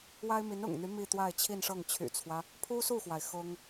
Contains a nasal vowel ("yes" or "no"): no